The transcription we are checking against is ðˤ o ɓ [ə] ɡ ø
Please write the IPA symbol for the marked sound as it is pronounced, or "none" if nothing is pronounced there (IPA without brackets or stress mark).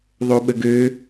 ə